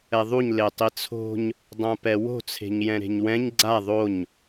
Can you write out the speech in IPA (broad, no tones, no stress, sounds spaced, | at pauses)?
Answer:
ɛ ðˤ u ɲ l e tˤ i t͡sʰ o̤ ɲ | dˤ ã p ɛ w o̤ t͡sʰ e̤ ɲ j ɛ̃ ɾ e̤ ɲ w ɛ̃ ɲ ɡ͡ǀ a ðˤ o ɲ